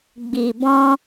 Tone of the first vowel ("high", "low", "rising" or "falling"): low